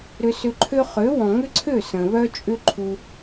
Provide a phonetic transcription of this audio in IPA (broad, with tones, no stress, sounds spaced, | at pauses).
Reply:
ɾ ʏ˧ s ʏ˧ ǃʰ ø˦ χ ø˨˦ w ɔ̃˨ ŋ ʏ˦ ǀʰ ø˦˨ s ə̃˨ β œ˦ t͡ʃʼ ʏ˦ ǃʰ u˦